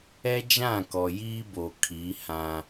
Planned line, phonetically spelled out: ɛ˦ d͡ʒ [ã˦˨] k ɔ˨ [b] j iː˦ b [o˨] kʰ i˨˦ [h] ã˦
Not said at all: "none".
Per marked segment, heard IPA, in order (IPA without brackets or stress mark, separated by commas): ã˦˨, none, o˨, h